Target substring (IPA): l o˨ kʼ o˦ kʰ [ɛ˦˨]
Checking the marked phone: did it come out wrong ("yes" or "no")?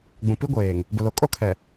yes